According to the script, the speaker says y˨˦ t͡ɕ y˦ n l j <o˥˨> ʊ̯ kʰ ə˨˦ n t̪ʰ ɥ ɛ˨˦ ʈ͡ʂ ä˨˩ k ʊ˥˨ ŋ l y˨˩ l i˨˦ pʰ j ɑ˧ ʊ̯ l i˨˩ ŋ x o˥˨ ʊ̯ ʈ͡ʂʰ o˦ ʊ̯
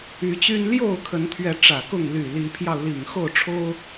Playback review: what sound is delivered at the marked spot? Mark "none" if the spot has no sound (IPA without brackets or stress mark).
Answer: o˥˨